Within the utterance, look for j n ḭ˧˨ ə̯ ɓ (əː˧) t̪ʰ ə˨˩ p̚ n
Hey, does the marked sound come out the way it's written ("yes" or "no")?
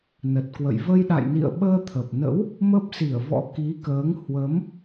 yes